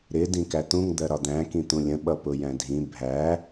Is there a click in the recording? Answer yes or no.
no